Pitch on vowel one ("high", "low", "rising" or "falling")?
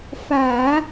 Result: low